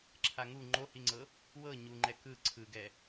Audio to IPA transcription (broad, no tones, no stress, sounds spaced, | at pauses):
ǁʰ a ŋ u ŋ͡ǃ o h i ŋ͡ǀ ɤ | w ɤ ɲ u ŋ͡ǃ ɛ k ɯ ǀʰ ɯ ɡ ɛ